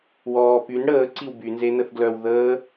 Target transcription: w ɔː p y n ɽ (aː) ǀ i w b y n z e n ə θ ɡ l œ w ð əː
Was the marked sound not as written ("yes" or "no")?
yes